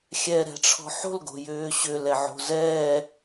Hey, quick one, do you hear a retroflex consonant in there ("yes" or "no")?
yes